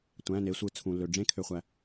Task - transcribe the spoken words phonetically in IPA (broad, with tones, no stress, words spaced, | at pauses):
tʷæ̃˩˧˩ne˩˧sʷɯ˩˧ t͡sʰũ˩ lːø˩ɖ͡ʐẽ˥kʰø˩˧˩χʷæ˩